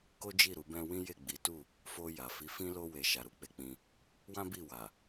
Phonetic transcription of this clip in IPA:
k o˦ d͡ʒ i˦˨ ɾ u˨˦ b ɛ̃˦ w ĩ˦ j e˦˨ ɡ͡b i˨˦ t u˦˨ | f o˧ j a˨ f i˨˦ f ĩ˦ l o˦ w e˧ ʃ a˧ ɾ u˦ k͡p e˧ k͡p ĩ˧ | w ã˦ b i˦˨ w a˨

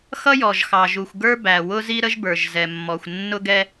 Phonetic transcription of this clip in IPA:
x ʌ˥ j ɔ˩ ʒ x ɑ˩ ʒ u˩ xʷ ɡ ə˞˥ b æ˩ w ʊ˥ z i˥ ɾ ə˥ ʒ b ə˞˩ ʒ z ɛ˩ mː ɔ˩ xʷ nː ʊ˥ ɡ ɛ˥

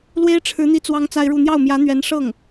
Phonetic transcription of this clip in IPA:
l w e˥ ɪ̯ ʈ͡ʂʰ ɻ̩˧˥ n̪ i˥ t͡s w ɑ˥ ŋ t͡s a˥ ɪ̯ ɻ u˥˧ n̪ j ɑ˥˩ ʊ̯ m j ä˧˥ n̪ ɥ ɛ˧˥ n ʂ ɤ˥˩ ŋ

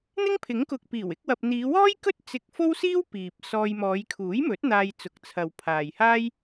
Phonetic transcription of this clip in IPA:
n̪ ɪ˥ ŋ pʰ ɪ˨˥ ŋ k ʊ˨ k̚ p iː˨˩ w ɪ˨˥ k̚ w ɐ˨ p̚ n̪ iː˨˧ w ɔː˥ j k ɵ˥ t̚ t͡s ɪ˧ k̚ f o˥ w s iː˥ w p iː˨ p̚ s ɔː˧ j m ɔː˨˧ j kʰ uː˨˥ j m ɵ˨˥ t̚ n̪ aː˧ j t͡s ʊ˨˥ k̚ t͡sʰ ɐ˨ w pʰ aː˨ j h aː˥ j

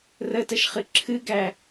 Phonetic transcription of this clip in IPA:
r ə t ə ʃ χ ɨ ǁʰ ɨ ɡ æ

